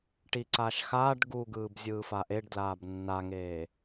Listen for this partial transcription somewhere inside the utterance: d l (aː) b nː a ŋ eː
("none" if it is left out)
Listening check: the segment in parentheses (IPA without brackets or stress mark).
aː